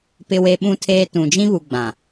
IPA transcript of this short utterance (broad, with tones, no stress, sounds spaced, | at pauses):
p ɪ˦ w e˦ ɓ ũ˦ tʰ eː˦ t ũ˨ d͡ʒ ĩ˦ β u˨ ɡ͡b ã˨